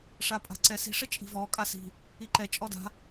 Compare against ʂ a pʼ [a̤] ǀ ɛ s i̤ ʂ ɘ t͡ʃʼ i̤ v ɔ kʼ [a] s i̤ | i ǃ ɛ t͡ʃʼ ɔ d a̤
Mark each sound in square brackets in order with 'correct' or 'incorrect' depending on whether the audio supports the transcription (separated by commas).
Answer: correct, correct